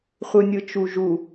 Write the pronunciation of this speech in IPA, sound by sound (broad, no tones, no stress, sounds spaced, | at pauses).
χʷ ɯ nʲ ɯ t͡ʃ u ʒ u